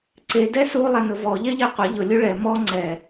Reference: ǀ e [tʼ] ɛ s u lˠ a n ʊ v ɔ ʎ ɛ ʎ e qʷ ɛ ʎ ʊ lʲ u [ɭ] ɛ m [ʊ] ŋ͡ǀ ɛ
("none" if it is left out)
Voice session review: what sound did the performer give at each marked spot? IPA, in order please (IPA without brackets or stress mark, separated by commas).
d, ɭ, ɔ